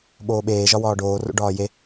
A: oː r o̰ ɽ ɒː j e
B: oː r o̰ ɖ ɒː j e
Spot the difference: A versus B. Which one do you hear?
B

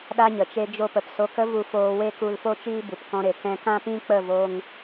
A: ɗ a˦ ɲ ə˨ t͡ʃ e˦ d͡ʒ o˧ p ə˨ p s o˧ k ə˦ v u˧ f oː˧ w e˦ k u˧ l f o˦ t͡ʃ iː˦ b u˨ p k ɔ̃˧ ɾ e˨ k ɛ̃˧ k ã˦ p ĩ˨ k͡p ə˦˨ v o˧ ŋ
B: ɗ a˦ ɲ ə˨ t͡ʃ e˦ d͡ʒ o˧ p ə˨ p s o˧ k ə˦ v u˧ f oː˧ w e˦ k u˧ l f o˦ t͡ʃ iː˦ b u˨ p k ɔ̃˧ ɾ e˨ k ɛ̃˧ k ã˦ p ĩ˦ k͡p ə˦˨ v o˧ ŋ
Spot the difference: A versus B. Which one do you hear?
B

